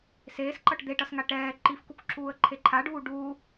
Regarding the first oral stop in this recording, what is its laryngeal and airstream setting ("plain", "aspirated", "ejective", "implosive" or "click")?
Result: click